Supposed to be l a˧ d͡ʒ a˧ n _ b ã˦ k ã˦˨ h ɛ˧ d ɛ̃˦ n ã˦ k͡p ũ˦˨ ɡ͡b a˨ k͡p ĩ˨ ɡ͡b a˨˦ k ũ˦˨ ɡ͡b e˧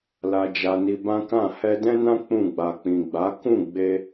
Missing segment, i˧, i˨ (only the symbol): i˧